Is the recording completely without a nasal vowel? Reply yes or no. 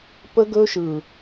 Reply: yes